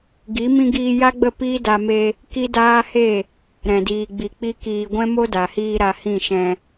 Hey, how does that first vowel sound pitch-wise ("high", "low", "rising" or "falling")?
rising